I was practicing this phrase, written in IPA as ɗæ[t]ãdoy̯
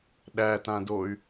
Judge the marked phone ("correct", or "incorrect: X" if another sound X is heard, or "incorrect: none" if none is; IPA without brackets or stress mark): correct